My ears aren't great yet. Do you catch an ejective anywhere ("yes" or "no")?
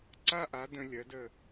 no